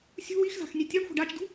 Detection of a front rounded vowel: absent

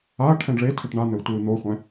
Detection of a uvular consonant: present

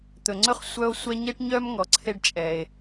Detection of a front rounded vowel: present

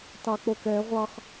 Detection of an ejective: absent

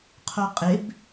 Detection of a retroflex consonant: absent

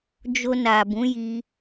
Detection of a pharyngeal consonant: absent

